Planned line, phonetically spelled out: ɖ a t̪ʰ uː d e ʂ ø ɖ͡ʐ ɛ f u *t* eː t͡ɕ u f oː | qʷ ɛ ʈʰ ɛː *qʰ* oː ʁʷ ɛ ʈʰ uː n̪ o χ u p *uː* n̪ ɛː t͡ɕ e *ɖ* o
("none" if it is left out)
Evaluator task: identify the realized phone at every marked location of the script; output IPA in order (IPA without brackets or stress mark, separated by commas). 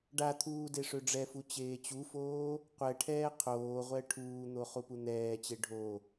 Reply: t͡ɕ, qʰ, u, ɖʱ